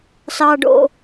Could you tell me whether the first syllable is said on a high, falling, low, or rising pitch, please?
low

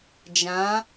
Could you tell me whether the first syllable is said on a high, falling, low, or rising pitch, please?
rising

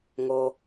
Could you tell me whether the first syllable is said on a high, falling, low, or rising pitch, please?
low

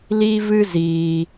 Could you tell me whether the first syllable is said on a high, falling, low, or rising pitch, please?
high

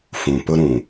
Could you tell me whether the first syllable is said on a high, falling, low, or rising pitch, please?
low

